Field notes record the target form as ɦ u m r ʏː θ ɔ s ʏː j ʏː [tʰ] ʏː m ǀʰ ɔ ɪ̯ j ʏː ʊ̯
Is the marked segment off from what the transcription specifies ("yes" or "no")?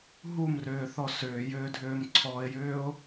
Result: yes